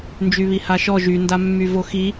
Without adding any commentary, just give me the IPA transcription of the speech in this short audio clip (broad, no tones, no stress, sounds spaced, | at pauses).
n d͡ʒ y β i h a ʃ ɔ ʒ y n d a mː y v o x i